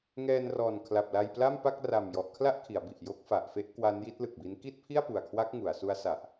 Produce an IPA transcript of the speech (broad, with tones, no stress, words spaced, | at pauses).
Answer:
ŋɛː˧nrɔː˨˩nkʰla˨˩p̚ la˧jpla˥˩mpa˥˩k̚ ra˨˩mjɔ˨˩ʔ kʰla˦˥ʔ kʰi˩˦a̯bi˨˩ʔjo˦˥k̚ fa˨˩ʔfe˥˩ʔ kwa˦˥nji˦˥t̚lɯ˨˩k̚bi˦˥n ki˥˩t̚pʰi˥˩a̯pu˨˩a̯kʰwa˦˥k̚ ŋu˩˦a̯ su˦˥a̯sa˨˩ʔ